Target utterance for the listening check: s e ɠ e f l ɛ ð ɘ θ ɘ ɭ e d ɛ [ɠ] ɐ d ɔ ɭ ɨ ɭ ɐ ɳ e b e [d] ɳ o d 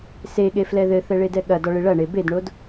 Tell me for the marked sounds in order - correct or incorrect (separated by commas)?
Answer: correct, correct